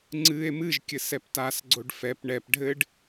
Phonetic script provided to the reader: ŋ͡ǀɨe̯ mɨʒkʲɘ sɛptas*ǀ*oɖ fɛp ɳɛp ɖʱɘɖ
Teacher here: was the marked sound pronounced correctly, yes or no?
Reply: no